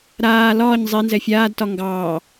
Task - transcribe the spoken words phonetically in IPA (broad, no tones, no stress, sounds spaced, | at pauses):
ɾ aː l ɒː ɲ zˤ e n z ɛ fʲ aː d t ɒ ŋ ɡ ɑː